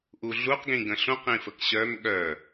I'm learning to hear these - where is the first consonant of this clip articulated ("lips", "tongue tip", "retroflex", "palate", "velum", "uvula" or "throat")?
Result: throat